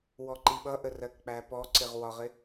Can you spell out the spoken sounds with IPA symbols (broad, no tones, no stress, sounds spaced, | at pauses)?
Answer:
w ɔ ǃ i ɓ ʌ ʔ ə r ɜ k k͡p æ p ɔ ǀ ɪ ʁ w ɒ ʁ ɪ